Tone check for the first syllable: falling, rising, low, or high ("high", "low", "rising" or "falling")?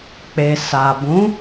low